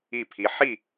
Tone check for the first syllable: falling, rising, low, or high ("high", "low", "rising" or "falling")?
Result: falling